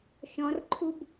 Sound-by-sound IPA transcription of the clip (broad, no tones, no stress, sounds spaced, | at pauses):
ʃ ɔ̃ r ǃʰ u b